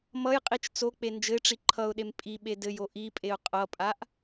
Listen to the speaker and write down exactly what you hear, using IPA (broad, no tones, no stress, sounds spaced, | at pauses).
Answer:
m ʌ j qʼ i t͡ʃ t͡s o k͡p e n d͡ʒ ɘ ɪ̯ ʈ͡ʂ i ǃʰ ʌ ʊ̯ ɗ e m pʼ i ɓ e d ɘ j o ʔ i pʼ e ʊ̯ qʼ ʌ pʼ a ʔ